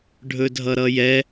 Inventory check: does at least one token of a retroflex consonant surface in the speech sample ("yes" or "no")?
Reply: yes